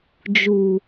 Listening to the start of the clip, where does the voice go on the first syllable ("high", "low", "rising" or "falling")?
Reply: low